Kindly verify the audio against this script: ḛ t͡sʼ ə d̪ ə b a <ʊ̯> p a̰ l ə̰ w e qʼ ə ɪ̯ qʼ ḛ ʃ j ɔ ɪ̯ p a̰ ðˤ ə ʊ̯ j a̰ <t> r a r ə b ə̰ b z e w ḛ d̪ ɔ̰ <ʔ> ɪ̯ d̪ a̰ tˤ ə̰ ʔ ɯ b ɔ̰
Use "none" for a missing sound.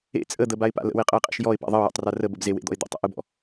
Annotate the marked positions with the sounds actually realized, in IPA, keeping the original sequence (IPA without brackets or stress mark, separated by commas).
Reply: ɪ̯, tˤ, none